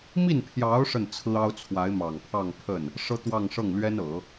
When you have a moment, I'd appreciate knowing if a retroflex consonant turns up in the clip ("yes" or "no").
yes